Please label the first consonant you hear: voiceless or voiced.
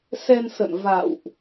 voiceless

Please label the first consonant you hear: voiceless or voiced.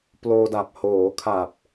voiceless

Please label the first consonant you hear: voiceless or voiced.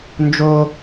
voiced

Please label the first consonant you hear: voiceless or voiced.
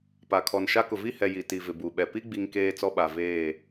voiceless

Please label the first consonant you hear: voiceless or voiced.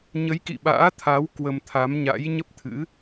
voiced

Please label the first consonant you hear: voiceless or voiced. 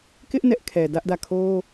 voiceless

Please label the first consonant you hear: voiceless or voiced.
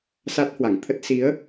voiceless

